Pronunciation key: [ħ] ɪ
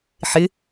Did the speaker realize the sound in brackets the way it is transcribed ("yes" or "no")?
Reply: yes